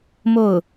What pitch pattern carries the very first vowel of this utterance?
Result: falling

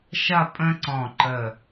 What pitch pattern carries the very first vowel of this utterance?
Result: falling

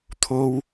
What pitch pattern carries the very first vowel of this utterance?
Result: high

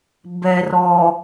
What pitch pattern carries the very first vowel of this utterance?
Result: low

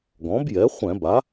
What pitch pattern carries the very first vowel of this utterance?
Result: rising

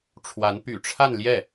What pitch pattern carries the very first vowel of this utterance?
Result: rising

